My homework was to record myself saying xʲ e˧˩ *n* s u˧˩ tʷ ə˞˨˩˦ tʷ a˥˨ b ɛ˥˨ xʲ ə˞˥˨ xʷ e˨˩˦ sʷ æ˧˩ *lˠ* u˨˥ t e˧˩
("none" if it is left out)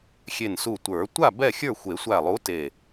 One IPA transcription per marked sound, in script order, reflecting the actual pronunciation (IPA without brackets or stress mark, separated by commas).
n, lˠ